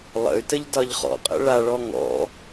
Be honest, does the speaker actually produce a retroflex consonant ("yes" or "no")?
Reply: yes